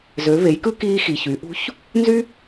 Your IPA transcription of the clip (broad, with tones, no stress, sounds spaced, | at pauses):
z ø˩˧ v e˩˧ j k ɯ˥ k iː˧ x i˩ ç y˩˧ ʔ ṳ˧˥ ç | n z y˥